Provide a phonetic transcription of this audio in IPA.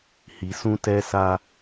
h i˨ s ũ˦ t ɛ˦ s a˦

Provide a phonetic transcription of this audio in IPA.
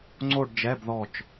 ŋ͡ǀ o˥˧ ɖ d͡ʒ ɛ˧˥˧ b ð ɔ˧˩ t͡ʃ

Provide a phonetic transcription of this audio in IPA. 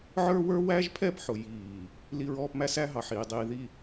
ʕ ə˞˦ w ə˞˦ w æ˦ ʒ pʰ ɛ˦˨ p ħ ʊ˨ j iː˨ | l i˦ ɹ ɔː˦ p m æ˦ s æ˦ ɦ ɑ˨ ħ iː˨ dˤ iː˨ ð i˨

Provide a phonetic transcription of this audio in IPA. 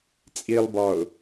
t͡sʼ i lˠ b ɒ ʊ̯

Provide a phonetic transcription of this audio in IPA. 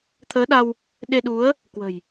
t̪ʰ əː˨˦ ɗ a˧ w | ɗ e˧ ɗ u˨˦ ə̯ | k w ə̤˨˩ j

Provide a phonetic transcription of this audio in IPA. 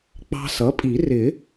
k͡p ɑ̤˧ s ʌ˩˥ pʼ i˨˩˦ r ɪ˨˩˦

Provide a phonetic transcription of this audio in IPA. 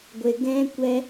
ɡʷ e˨ ɡ ɛ̃˧ kʷ ɛ˧

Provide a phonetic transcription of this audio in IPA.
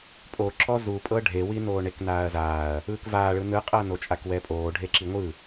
pʼ o ǁ ɔ z u pʼ ɤ ɖʱ e w i n oː ɳ e k n aː ɐ̯ z aː ɐ̯ | ɯː k v aː ɭ ɯ n ɯ qʼ ɤ n o t͡ʃʼ a k w ɛ pʼ oː ɖʱ e ǁ i ŋʷ ɯ

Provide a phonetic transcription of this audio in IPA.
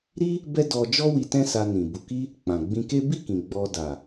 ɾ i˦ | b ɛ˦ d ɔ˧ d͡ʒ ɔ˦ w i˧ t ɛ̃˦ s a˧ n ĩ˨ b u˨ k i˧ | k͡p ã˨ ɡ͡b ĩ˧ k e˦ b i˦˨ k ĩ˨ ɡ͡b ɔ˧ d a˨

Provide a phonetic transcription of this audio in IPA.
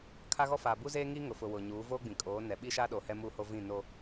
kʰ a˦ ɣ ɔ˦ f aː˨ b u˦ z eː˦ ŋ iː˦ ŋ ʊ˨ f ʊ˨ w ʊ˨ ɲ uː˨˦ v oː˦ ɡ͡b ĩ˨ kʼ oː˨˦ n ɛ˨ ɓ i˦ ʃ a˦ ɗ o˨ h ɛ˦ m uː˦ h o˦ v ĩ˦˨ n o˦

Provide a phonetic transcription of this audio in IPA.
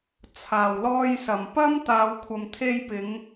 t͡sʰ aː˨˩ w l ɔː˧ j s ɐ˨˩ m p ɐ˥ m t̪ aː˨˧ w kʷʰ ɐ˨ m t̪ʰ e˧ j p ɪ˨˧ ŋ

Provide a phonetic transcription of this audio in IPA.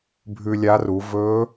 bʱ ʉ˧ lʲ a˧˥ r u˩˧ v ɵ˧˥

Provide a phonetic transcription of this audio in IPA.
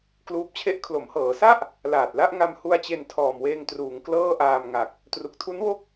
k l uː˦˥ p̚ t͡ɕʰ e˥˩ ʔ kʰ l o˩˦ m h ɤː˩˦ s a˥˩ ʔ | l aː˨˩ t̚ l a˥˩ ʔ ŋ a˧ m h u˧ a̯ t͡ɕ e˧ n tʰ ɔː˨˩ m w eː˧ ŋ t r uː˩˦ ŋ k l ɤː˥˩ ʔ aː˧ m ŋ a˨˩ k̚ | t r u˨˩ k̚ tʰ u˦˥ n w o˥˩ k̚

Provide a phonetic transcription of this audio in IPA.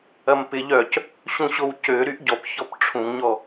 ɐ m p ɪ ʎ œ c | ɕ ũ ɕ o w c ø ɾ y ʔ ɟ ɔ p ç ɔ p ʈ͡ʂʰ ũ ŋ ɲ ɔ

